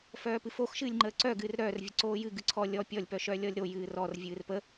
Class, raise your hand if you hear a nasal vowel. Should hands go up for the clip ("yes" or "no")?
no